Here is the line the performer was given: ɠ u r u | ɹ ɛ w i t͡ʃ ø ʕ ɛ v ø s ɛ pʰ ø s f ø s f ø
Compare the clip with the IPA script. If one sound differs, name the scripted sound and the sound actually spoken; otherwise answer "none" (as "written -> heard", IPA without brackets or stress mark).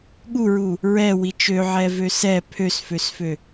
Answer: r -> ɹ